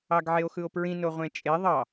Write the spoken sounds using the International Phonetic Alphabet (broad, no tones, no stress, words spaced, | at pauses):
ɑɡʕeo̯xɯo̯pɹĩ noʁʷẽt͡ʃʼe ðˤɑ